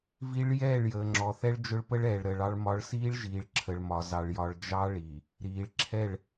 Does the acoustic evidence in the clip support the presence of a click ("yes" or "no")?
yes